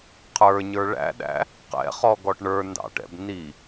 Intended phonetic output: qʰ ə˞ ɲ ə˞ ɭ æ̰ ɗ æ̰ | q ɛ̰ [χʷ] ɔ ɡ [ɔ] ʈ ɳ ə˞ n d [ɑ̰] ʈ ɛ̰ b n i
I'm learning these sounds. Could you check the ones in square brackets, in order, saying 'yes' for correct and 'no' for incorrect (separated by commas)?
no, yes, yes